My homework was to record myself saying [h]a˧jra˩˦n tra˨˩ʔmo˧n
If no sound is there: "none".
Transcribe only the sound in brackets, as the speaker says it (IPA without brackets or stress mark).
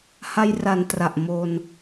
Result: h